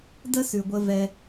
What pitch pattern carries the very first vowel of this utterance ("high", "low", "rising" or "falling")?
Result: high